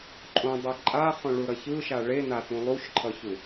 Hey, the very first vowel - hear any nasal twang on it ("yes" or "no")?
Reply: yes